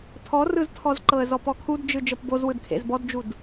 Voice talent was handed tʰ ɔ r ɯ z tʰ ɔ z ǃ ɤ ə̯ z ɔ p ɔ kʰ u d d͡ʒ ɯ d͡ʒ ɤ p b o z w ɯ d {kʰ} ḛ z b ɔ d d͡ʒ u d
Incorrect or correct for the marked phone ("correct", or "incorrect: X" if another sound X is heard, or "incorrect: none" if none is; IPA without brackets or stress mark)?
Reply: correct